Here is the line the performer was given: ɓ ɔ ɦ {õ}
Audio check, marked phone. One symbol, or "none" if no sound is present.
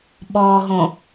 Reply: õ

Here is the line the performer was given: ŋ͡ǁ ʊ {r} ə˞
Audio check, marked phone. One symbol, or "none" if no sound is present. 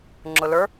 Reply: l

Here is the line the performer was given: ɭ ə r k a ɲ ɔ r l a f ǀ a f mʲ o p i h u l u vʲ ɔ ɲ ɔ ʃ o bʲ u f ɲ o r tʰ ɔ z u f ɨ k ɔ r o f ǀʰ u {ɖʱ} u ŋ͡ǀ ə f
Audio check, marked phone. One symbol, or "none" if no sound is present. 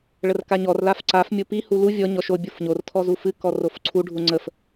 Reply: ɖʱ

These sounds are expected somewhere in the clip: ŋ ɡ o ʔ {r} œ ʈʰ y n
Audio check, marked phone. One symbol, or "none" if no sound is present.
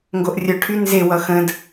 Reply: rʲ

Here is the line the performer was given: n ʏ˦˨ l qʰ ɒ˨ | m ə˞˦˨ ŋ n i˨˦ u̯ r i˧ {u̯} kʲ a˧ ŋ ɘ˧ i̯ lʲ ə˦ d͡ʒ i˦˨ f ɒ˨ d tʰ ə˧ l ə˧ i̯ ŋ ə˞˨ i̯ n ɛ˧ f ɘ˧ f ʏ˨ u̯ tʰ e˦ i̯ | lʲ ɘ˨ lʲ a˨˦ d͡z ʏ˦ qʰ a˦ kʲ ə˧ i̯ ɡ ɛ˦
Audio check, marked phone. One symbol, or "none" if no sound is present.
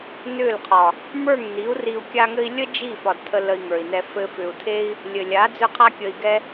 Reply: u̯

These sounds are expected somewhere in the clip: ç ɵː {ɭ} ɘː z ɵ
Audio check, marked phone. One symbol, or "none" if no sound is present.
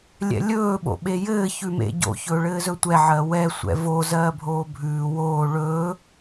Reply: ɭ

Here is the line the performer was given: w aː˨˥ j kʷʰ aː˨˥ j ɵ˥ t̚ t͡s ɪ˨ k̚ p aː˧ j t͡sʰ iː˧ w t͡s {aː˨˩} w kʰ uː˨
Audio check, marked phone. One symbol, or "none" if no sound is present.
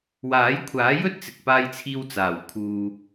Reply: aː˨˩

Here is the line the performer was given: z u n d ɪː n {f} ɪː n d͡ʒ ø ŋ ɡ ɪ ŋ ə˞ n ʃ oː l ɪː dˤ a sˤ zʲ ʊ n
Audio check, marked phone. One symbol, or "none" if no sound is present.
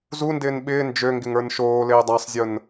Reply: ɓ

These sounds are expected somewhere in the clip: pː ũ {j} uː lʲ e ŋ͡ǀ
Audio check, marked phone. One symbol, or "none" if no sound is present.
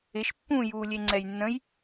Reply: j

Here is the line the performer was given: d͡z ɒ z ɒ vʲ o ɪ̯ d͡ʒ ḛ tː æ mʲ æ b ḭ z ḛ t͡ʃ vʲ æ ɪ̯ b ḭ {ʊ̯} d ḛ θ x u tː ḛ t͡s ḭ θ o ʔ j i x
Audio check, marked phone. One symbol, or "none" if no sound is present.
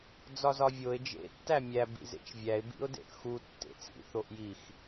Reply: ʊ̯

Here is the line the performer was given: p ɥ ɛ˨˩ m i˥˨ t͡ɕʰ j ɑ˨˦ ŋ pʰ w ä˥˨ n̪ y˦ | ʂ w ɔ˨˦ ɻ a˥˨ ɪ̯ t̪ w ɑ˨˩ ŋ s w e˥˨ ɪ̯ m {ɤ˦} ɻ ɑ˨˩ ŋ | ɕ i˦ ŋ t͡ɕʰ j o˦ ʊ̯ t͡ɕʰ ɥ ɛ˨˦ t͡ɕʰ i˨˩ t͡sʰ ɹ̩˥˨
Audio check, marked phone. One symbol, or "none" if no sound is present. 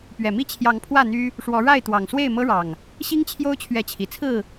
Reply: ɤ˦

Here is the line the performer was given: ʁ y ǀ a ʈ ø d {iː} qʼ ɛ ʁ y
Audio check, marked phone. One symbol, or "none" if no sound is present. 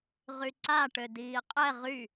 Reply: iː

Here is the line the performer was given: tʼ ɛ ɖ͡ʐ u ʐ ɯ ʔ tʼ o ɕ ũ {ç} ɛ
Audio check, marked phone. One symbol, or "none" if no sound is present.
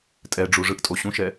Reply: ʃ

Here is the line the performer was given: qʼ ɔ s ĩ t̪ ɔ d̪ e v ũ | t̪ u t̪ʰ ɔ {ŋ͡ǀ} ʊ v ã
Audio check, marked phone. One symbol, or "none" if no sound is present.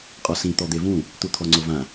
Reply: ŋ͡ǀ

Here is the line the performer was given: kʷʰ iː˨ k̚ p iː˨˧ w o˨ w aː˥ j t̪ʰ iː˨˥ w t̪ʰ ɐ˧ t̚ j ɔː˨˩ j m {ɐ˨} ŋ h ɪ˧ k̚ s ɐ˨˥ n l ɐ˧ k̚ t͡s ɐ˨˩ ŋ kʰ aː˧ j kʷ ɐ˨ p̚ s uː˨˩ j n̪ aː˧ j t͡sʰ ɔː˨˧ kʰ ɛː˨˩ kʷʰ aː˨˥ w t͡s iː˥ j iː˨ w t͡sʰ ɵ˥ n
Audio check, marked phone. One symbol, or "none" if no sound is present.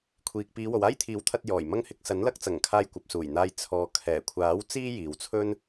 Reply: ɐ˥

